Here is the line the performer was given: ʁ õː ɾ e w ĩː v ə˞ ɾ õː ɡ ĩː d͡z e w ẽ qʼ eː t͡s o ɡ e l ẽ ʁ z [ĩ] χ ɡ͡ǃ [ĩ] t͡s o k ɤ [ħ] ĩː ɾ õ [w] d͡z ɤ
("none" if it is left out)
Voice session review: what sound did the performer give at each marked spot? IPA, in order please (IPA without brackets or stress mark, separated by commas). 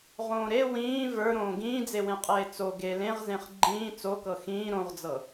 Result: ẽ, ĩː, x, ʁ